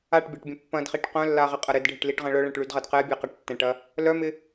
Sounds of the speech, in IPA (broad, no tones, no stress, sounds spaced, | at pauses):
a ʈ bʲ a ʈ bʲ ɐ̃ pː ɐ̃ d χ i ʈ q œ̃ lː a ʁ ɪ qʼ ɐ ɾ ɪ d ɖʱ ɪ ʈ l i ʈ ʁ ɐ̃ ɭ œ ɭ ɛ̃ ʈ ɭ y d ʁ ɐ d q ɛ bʲ ɛ q ɐ ʈ tː ɛ̃ ʈ ɐ | l œ m ɪ